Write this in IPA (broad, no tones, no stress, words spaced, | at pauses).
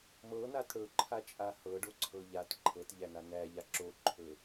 mɤnat ɽɵǃʰat͡ʃʼa hɤɖoǀʰɤ ʎat ǃʰɤtʎæna næʎa ǁoǃʰɵ